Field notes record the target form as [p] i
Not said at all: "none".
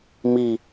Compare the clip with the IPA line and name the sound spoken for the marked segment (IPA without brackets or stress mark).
m